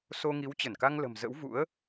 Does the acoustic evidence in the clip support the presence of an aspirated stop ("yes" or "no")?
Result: no